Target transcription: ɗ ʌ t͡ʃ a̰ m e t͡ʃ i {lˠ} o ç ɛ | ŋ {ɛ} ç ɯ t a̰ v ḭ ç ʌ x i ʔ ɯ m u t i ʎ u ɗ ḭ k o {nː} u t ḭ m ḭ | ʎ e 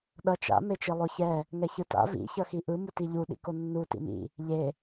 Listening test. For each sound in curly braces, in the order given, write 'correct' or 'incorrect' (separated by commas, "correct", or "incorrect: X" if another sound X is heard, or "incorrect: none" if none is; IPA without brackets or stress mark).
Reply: correct, correct, correct